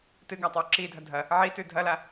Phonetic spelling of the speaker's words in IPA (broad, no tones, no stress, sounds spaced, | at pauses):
t ɨ ɡ a tˤ o ǁ i dʱ ɐ dʱ ɐ | ʕ i t ʉ dʱ ɐ l a